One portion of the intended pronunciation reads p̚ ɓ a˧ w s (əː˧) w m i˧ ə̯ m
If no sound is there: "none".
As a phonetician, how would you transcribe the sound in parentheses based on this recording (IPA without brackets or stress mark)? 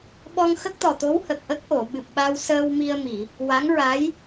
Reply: əː˧